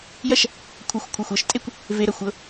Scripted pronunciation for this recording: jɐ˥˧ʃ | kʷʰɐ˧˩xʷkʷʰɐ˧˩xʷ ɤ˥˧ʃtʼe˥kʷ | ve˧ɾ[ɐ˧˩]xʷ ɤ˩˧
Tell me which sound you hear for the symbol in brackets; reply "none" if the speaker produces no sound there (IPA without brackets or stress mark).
ɐ˧˩